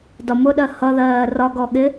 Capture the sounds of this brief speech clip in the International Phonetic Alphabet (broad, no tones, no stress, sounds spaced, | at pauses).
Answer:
d ɒ m ʊ ɗ ɜ h ʌ ð ɜː r ɒ ɡ ɔ ɠ ɪ